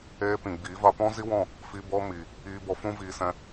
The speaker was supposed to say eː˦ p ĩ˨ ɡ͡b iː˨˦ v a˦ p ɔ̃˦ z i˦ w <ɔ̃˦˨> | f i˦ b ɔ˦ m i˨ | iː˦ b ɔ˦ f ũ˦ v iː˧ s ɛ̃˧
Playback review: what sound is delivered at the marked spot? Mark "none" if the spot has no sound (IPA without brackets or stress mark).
ɔ̃˦˨